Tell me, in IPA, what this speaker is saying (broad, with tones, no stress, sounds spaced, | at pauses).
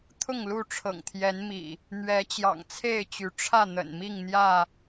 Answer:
t̪ʰ ʊ˥˨ ŋ l u˥˨ ʈ͡ʂʰ ɤ̰˨˩ ŋ t̪ʰ j ɛ˨˦ n m ḭ˨˩ | n̪ ɥ ɛ˨˦ t͡ɕ j ɑ̰˨˩ ŋ t͡sʰ e˥˨ ɪ̯ t͡ɕ y˨˦ ʈ͡ʂʰ ä˥˨ n̪ ə̰˨˩ n m i˥˨ ŋ n̪ j ä˥˨